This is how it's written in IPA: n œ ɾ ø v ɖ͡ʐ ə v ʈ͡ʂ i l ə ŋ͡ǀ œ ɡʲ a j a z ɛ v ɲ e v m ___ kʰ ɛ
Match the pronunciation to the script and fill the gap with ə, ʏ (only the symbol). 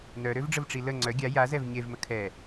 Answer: ə